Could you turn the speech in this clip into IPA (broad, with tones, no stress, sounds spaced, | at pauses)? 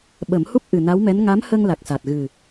ɓ ə˨˩˦ m h u˦˥ p̚ ʔ ɨ˨˩ n a˧˥ w m ɛ˧˥ n ŋ a˧˥ m h ə˧ ŋ l a˨˩ k̚ s a˨˩ t̚ ɣ ɨ˨˩